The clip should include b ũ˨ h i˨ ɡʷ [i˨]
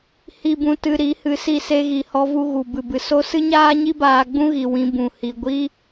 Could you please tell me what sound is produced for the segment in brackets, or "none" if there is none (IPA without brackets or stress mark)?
i˦